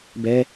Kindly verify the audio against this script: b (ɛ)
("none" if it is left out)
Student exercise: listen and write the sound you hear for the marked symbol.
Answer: ɛ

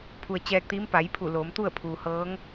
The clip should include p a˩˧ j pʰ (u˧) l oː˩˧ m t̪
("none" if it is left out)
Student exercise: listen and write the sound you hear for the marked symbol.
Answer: u˧˩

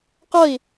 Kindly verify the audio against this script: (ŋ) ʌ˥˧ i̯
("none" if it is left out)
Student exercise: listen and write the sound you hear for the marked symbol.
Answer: q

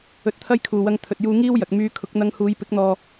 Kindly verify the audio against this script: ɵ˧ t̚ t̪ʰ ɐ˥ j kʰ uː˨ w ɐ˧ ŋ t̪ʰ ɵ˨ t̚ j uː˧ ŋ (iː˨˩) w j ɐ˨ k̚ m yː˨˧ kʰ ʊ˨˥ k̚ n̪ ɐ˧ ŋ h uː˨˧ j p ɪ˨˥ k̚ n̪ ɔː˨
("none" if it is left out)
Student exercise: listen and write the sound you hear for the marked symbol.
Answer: iː˥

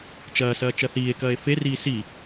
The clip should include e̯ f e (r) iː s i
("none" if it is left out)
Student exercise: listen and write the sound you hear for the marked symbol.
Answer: r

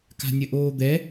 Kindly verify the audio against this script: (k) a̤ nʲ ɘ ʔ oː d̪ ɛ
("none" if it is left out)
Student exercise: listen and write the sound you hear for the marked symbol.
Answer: k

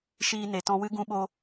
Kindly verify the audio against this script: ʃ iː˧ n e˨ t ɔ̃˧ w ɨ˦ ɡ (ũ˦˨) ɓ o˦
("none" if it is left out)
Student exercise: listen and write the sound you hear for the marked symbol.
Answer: ũ˦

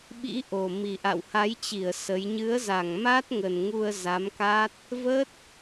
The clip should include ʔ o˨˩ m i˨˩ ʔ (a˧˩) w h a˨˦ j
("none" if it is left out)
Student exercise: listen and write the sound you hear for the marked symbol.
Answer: a̰˧˨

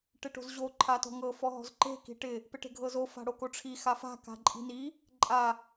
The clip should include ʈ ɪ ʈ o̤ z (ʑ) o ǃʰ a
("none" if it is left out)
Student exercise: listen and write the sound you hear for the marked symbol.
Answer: ʑ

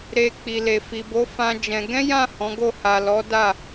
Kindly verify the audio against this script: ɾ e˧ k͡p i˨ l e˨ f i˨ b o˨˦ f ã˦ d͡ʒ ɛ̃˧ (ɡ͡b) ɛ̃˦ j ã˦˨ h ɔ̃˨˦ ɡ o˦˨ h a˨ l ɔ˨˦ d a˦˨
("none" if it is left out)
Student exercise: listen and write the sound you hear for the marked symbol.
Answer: ɡ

